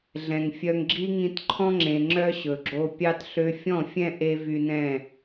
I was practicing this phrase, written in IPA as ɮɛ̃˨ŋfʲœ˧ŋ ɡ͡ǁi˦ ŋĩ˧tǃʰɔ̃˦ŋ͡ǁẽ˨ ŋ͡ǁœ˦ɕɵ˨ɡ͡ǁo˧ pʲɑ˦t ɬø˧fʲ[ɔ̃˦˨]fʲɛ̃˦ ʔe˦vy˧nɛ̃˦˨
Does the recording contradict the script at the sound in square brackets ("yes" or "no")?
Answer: no